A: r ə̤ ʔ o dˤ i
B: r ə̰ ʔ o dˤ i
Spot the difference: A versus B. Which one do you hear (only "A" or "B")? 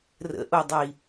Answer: B